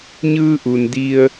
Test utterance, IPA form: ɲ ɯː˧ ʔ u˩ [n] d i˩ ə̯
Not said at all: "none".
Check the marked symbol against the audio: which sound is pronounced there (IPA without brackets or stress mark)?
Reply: n